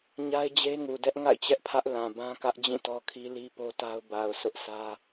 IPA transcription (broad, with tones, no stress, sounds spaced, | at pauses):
ɲ a˦ ɪ̯ d͡ʑ e˦ ŋ u˨ d ɛ˦ ʔ ŋ a̰˦˨ ɪ̯ t͡ɕ ɛ˦ ʔ pʰ ä˦ ʔ l ã˨ b ã˦ k ä˦ ʔ d͡ʑ ĩ˦˨ t ɔ˦ kʰ i˦ l i˦ p o˦ t a˦ ʊ̯ b a˨ ʊ̯ sʰ ʊ˦ ʔ s ä˦